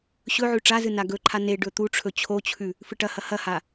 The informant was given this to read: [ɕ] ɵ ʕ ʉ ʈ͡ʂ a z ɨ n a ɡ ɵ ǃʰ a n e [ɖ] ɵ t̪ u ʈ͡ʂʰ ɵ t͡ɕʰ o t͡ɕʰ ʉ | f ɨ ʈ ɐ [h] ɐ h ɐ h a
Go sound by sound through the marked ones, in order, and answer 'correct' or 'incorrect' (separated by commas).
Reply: correct, correct, correct